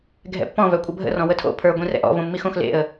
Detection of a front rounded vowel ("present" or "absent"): present